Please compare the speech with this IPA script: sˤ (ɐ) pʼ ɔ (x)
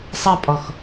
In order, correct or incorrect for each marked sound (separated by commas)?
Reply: correct, correct